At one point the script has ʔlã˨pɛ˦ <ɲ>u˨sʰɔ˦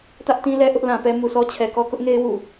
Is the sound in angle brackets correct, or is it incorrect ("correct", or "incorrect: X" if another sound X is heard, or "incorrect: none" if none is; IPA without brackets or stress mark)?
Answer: incorrect: m